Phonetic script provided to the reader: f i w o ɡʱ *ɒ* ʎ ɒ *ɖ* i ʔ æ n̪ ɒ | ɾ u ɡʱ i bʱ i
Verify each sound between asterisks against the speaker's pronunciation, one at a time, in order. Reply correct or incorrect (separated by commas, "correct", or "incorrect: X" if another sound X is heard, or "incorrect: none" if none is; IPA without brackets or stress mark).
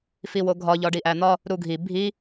correct, correct